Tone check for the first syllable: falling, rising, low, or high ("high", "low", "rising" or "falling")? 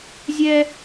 high